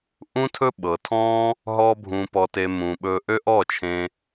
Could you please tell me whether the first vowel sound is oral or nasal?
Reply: nasal